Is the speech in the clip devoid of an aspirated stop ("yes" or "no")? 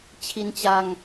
no